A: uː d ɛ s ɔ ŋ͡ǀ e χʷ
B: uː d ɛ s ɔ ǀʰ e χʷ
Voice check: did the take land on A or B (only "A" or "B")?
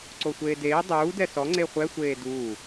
A